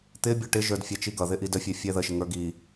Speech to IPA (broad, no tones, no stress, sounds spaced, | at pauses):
t̪ ɪ bʲ ɔ ʈ ɪ ʒ ə˞ d fʲ æ t͡ʃ i ɡ ʌ ð ɪ ʔ i d ə fʲ ɛ fʲ ɛ ð ə ʃ ɪ ŋ ə˞ ɡ i